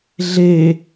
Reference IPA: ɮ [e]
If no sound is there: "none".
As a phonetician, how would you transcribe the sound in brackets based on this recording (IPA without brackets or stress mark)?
e